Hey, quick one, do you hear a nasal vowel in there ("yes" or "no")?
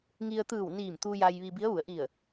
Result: no